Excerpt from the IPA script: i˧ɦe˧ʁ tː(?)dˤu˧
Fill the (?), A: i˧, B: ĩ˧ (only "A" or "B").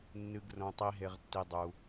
A